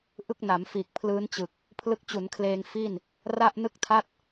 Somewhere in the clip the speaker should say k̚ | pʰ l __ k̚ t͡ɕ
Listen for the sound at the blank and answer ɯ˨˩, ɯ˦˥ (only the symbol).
ɯ˦˥